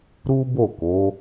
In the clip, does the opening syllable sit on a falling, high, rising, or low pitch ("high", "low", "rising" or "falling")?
high